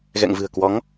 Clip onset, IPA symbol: ɣ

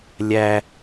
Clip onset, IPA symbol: lʲ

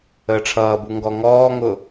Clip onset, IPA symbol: əː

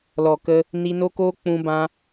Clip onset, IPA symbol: l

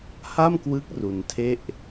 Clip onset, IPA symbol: h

